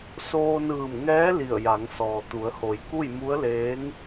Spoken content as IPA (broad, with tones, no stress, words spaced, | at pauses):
soː˧nɯː˧˩mŋɛː˧˥ li˧˩ə̯ja˩˧ŋ sɔː˩t̪u˩˧ə̯ho˩˧j ku˥˨jmu˧˥ə̯leː˧˥ŋ